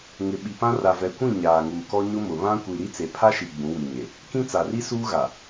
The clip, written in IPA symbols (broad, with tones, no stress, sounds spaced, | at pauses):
ŋ ɪ˨ ɓ i˨ p ã˦ r a˨ v ɛ˨ kʷ ĩ˦˨ ɲ aː˨ ŋ uː˨ k ɔ˦ ɲ ʊ˦ m ʊ˨ β ã˦ kʷ i˨ ɾ i˦ t͡s e˨ pʰ a˦ ʃ i˨ ɡ͡b ũ˨˦ w i˨ ɲ e˨ | k ĩ˦ t͡s a˨ r i˦ s uː˦ ɣ a˨